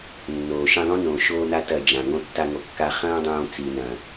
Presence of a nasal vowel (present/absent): present